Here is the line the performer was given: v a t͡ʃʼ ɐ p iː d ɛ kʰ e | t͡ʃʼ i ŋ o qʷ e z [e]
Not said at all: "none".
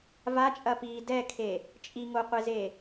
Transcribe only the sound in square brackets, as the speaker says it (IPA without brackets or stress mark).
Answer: e